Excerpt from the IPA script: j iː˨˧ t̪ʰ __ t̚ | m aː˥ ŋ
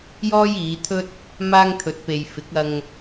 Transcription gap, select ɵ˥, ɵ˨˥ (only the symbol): ɵ˥